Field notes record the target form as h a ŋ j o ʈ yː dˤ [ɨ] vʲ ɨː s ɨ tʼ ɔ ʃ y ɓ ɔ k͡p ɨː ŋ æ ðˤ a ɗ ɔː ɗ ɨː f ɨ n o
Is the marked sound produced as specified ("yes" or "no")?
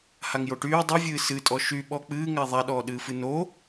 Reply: no